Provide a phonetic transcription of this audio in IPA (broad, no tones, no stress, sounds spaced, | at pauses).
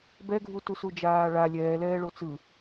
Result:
b ɛ ɡʱ u t u s u d͡ʒ aː ɭ a lʲ ɛː l ɛː ɭ o t͡s ɯ